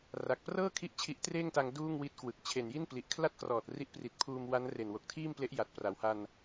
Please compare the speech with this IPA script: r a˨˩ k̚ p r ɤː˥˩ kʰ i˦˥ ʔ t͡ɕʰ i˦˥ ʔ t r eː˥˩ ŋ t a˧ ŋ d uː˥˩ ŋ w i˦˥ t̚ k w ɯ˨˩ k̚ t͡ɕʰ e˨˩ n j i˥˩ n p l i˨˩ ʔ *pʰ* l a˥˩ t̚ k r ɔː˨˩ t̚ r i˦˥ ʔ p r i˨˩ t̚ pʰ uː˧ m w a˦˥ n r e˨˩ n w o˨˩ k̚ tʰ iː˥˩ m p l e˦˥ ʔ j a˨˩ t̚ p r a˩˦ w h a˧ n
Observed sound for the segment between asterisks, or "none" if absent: kʰ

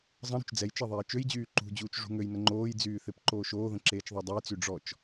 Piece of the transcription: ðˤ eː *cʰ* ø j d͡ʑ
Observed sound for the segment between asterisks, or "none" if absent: t͡ʃ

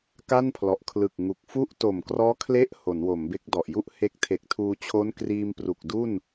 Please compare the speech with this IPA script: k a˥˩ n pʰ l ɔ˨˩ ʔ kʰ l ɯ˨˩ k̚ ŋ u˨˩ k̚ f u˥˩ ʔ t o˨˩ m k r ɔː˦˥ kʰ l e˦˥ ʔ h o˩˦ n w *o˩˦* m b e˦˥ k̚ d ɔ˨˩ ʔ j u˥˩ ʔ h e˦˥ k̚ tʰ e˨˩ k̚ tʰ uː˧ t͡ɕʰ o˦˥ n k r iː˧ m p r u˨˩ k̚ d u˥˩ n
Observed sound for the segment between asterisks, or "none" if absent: o˩˦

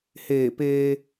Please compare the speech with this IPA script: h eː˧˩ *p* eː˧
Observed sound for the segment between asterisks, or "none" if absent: p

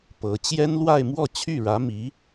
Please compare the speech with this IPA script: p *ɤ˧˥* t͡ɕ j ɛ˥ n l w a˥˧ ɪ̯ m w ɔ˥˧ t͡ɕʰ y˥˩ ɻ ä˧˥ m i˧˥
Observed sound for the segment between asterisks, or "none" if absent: ɤ˧˥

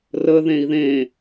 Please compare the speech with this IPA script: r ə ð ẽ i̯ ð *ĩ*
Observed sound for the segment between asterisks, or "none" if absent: ẽ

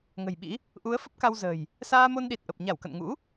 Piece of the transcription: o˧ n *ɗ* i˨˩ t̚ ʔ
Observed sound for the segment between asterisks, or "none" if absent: ɗ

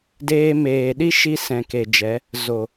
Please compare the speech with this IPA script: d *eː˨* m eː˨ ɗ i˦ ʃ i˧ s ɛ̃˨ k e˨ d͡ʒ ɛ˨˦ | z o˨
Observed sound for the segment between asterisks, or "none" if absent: eː˧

